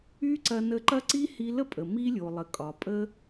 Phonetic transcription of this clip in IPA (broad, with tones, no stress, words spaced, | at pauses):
y˦ǀɐ˧nə˧ǃɐ˦ ǀi˦hi˧lə˦pʼə˨ mi˧ lʲo˨lˠə˨kʼɒ˨ pʼə˦